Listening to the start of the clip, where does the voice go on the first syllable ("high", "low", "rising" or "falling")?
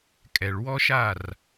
low